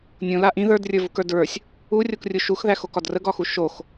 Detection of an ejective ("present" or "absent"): absent